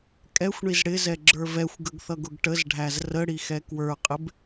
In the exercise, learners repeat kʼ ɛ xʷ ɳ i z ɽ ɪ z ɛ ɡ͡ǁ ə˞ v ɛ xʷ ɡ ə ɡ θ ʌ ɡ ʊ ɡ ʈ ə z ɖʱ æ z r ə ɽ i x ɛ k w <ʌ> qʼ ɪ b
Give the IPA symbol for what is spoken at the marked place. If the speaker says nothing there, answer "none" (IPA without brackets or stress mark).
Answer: ə˞